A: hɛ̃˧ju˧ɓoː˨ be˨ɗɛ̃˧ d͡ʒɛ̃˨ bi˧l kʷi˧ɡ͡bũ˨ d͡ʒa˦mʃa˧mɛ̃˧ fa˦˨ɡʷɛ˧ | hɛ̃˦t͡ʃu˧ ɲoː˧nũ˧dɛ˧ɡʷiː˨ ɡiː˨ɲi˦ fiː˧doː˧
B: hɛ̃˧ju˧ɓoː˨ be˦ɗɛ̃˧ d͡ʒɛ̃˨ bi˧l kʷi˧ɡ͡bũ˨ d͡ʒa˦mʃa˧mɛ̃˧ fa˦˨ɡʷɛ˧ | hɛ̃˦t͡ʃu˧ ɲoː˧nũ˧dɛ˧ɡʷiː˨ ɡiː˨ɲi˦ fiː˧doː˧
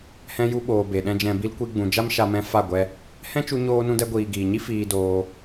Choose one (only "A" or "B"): A